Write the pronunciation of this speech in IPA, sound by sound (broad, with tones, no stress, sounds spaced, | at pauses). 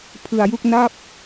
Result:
pʰ ɯ˧ a̯ j u˥˩ k̚ n a˥˩ p̚